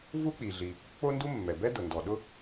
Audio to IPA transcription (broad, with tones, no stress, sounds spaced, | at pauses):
v u˥ k͡p i˩ ɮ i˩ | k͡p o˥ n d u˥ mː ɛ˩ b ɛ˥ d ʊ˩ n d ɔ˩ ɗ ʊ˥